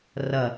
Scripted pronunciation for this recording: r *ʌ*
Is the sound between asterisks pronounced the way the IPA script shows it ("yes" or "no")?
yes